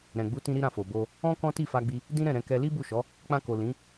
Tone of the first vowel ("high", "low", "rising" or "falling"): low